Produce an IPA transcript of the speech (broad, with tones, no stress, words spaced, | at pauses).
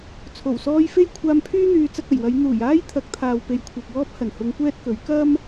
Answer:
t͡sʰo˨˩wsɔː˧jfe˥j kʷʰaː˧mpʰyː˥n̪yː˨˧ t͡sɐ˧k̚ɐ˨˩jwɐ˨˧j n̪uː˨˩jaː˥j t̪ʰɐ˨˥k̚t̪ʰaː˨w pe˨jkʷʰɐ˨p̚wɔː˥p̚ hɐ˨˩nhʊ˨˧ŋkʷɛː˥t̚ kɵ˨˥ɥ kɐ˥m